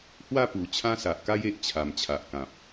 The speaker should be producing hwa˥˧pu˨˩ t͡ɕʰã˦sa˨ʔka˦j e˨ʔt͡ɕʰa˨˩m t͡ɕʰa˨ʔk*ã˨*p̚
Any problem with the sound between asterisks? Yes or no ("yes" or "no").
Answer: no